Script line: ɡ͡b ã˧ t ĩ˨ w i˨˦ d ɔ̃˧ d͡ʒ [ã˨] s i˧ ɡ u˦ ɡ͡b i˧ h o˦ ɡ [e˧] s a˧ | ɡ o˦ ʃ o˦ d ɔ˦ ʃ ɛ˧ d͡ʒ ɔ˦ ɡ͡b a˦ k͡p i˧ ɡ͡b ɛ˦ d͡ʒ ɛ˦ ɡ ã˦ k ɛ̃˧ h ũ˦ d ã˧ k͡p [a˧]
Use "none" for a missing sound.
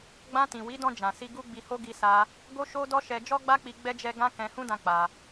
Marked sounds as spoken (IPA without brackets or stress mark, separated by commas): ã˨, i˧, a˧